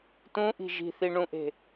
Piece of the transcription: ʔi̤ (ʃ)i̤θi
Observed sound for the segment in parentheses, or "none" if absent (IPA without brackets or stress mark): ʒ